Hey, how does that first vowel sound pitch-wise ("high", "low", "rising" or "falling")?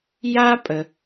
high